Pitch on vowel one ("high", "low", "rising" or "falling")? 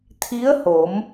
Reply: rising